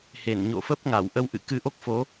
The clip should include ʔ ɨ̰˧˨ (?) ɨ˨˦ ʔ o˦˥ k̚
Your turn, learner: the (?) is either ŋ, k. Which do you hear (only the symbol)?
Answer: k